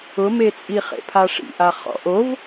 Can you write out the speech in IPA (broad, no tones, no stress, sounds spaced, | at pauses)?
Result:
ʊ m e t͡sʼ i χ ḛ pʰ a ʂ ḭ ʔ a χ ɔ̰ ʔ o v